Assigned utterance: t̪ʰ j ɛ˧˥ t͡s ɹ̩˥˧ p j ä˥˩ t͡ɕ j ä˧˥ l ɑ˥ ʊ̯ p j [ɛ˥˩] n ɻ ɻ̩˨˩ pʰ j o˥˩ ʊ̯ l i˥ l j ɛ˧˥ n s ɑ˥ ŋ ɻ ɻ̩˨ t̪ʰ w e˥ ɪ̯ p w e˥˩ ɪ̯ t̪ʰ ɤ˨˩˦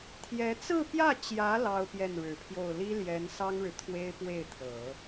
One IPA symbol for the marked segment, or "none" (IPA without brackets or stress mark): ɛ˥˩